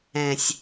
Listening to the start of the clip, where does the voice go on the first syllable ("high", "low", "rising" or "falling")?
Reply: low